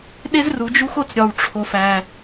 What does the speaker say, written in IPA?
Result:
ɗ e˦ z r u˨ d͡ʒ u˦ x o˦ t͡s ɾʲ ɒ˨ w ʈ͡ʂʰ o˨ f æ˨

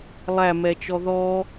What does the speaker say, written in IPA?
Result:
lˠ æ m ɛ t͡ʃ ɔ ð ɔ

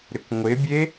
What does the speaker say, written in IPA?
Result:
ɾ ɪ kʷ ŋʷ ɪ bʲ e

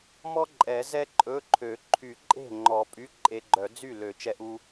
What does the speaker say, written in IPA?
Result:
m ɔ˥ ǃʼ ɛ˨˩˦ z ɛ˥ ǃʼ ɵ˧˥˧ ǃʰ ø˨˩˦ ǃʰ y˨˩˦ ǃʼ e̤˥˩ ŋ͡ǃ ɔ˨˩˦ pʼ y˧˥˧ ǃʼ e˧ ɡ͡ǃ œ˨˩˦ d͡z y˥˩ l ø˨˩˦ t͡ʃ ɛ˧ ʔ u˧

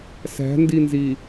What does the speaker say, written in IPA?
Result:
s æ̤ n d i n z i

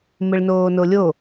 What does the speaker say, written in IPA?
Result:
m ɪ ɭ n oː n o lʲ o

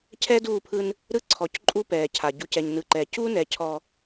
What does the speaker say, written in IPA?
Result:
cʰ ɛː˦ d uː˦˨ pʰ ɯ˦ n | ɾ ɯ˦ ǀʰ ɔ˨˦ c ǃʼ u˦ p ɛː˨ cʰ a˨ ɟ u˨ c ɛ˨ ɲ n ɯ˨ ǃ ɛː˨ c uː˦ n ɛ˨˦ cʰ ɔ˦

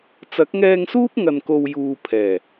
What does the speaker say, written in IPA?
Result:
t͡s ɐ˨˥ k̚ ŋ ɛː˧ ŋ s uː˥ p̚ ŋ ɐ˧ n k o˧ w j uː˨ pʰ ɛː˨˩

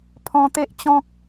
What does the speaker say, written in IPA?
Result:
pʰ ɔ̃˧ t̪ e˦ ʔ t͡ɕ ɔ̃˦ k̚

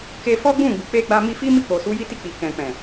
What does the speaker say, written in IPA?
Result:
k e˧ f ɔ˦ ɡ͡b ũ˦˨ ɡ͡b u˨ k͡p e˧ ɡ͡b a˧ m i˧ f i˦ m i˦˨ k͡p o˨ s u˨˦ j i˦ t i˦˨ k͡p i˨ k ɛ̃˨ k͡p ɛ̃˨

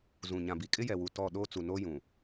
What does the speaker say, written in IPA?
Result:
z ũ˨ ɲ ã˨ b i˨ kʼ ɪ˦ j ɛ˨ w u˨ t ɔ˦˨ ɗ oː˦ t͡s u˨ n o˦ j ũ˨

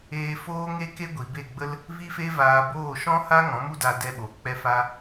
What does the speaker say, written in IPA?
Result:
eː˧ f oː˦ ŋ e˦ k e˦ ɡʷ i˨ b e˦˨ ɡ͡b ə˦ l | v i˦ f e˦ v aː˧ b oː˦˨ ʃ ɔ̃˦ h a˦ ŋ ɔ̃˨˦ m u˦ d a˧ d ɛ˧ ɓ o˨ k͡p ɛ˧ f a˧

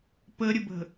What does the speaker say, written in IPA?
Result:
p ə ɾʲ ə b ə̤

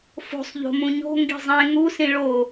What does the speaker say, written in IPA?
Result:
f o̤ sˤ ʎ o̤ m ũ ɲ o̤ ŋ ɡ i̤ zˤ ẽ ŋ u s ĩ ɭ o

